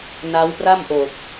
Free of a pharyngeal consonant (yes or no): yes